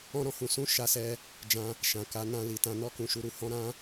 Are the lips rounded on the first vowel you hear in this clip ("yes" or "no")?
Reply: yes